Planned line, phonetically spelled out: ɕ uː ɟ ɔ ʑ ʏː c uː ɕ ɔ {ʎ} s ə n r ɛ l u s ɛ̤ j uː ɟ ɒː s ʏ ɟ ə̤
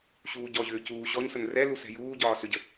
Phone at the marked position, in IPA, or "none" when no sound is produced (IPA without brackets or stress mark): ɲ